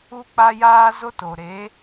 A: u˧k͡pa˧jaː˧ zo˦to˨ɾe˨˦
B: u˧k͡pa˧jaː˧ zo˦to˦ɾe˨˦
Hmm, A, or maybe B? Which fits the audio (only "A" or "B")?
A